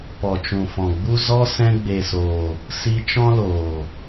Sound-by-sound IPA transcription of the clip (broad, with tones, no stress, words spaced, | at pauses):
pɔ˨t͡ʃũ˨fɔ̃˨ɡ͡bu˦ zɔ˦ sɛ̃˧ɡ͡be˨soː˨ | si˧t͡ʃɔ̃˦loː˨